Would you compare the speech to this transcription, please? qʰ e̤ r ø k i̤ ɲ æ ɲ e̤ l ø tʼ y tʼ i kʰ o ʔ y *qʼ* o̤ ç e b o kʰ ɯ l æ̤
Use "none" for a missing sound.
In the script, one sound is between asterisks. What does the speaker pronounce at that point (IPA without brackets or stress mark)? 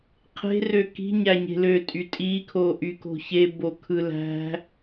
k